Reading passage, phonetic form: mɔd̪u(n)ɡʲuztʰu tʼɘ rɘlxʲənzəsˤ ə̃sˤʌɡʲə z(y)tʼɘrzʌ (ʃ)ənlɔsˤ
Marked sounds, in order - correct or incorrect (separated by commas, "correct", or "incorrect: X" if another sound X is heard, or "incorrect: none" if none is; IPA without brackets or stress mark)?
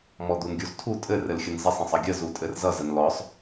correct, incorrect: u, incorrect: z